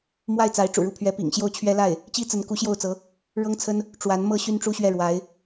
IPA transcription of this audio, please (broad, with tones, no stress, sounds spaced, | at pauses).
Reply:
m w a˥˩ ɪ̯ t͡s a˧˥ ɪ̯ ʈ͡ʂ ṵ˨˩ ɻ u˥˩ pʰ ɥ ɛ˧˥ p ḭ˨˩ ŋ ɕ j o˥˩ ʊ̯ t͡ɕʰ ɥ ɛ˥ l a˥˩ ɪ̯ | t͡ɕ i˥ t͡s ə˧˥ n k u˧˥ ɕ j o˥˩ ʊ̯ t͡s ɤ˧˥ | ɻ ɤ˥ ŋ t͡sʰ ə˥ n | ʈ͡ʂ w a˧˥ n m ɤ˥ ɕ y˥ n ʈ͡ʂ u˥ ɕ ɥ ɛ˥˩ ɻ w a˧˥ ɪ̯